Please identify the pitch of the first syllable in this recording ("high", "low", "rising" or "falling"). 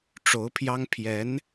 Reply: rising